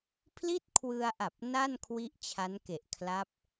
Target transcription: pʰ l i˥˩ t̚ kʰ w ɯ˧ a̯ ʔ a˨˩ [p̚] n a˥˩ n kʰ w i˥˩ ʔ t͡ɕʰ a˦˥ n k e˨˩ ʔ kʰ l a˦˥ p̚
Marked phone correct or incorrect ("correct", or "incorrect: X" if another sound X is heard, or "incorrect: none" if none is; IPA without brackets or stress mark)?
correct